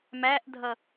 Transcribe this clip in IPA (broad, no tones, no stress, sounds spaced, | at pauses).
m æ ʔ dʱ ʌ